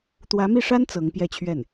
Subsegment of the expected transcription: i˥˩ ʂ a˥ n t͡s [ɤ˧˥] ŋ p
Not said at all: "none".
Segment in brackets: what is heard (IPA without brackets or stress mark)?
ɤ˧˥